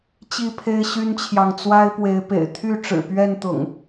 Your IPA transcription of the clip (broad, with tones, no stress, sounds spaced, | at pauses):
t͡ɕ i˥˨ pʰ e˦ ɪ̯ ɕ y˦ n t͡ɕʰ j ɑ˨ ŋ t͡s w a˦ ɪ̯ p w e˨˦ ɪ̯ p ḛ˨˩ ɪ̯ t̪ʰ y˥˨ ʈ͡ʂ ɻ̩˨˩ p ɥ ɛ˥˨ n t̪ ʊ̰˨˩ ŋ